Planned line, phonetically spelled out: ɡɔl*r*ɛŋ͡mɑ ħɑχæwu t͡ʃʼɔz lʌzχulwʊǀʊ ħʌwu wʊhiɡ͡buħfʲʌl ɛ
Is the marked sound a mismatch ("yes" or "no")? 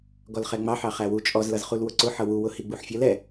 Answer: yes